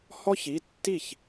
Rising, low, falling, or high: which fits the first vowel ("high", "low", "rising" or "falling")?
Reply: high